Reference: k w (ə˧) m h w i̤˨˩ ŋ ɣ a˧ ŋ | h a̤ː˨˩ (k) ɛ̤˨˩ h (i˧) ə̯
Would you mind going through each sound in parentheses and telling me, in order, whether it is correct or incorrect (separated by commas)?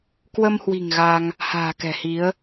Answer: correct, correct, incorrect